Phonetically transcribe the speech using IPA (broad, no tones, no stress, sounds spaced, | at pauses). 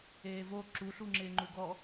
eː v o ǁ u ɬ u ŋ͡ǁ ɪː ŋ͡ǃ u ɡ ɔ